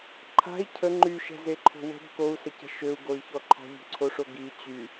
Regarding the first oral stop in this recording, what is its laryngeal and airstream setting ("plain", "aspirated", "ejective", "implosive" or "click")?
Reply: click